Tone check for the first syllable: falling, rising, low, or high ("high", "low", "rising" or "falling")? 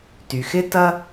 low